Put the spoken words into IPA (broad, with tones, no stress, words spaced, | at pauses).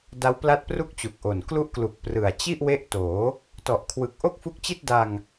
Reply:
da˦˥wpla˦˥t̚pru˥˩k̚ t͡ɕu˨˩k̚ʔo˨˩n klu˦˥ʔklu˨˩k̚ prɯ˨˩a̯ t͡ɕi˥˩ʔ we˦˥ʔtoː˩˦ | tɔ˨˩ʔkʰwɯ˨˩k̚ ʔo˥˩k̚fu˦˥k̚t͡ɕi˥˩t̚ da˧ŋ